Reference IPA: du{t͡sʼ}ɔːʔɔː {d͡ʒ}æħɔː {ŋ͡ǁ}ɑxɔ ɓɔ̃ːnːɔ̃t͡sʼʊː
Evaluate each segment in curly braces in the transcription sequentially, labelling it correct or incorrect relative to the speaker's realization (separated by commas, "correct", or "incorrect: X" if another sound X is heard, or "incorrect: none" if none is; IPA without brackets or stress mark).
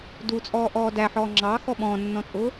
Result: correct, incorrect: d, correct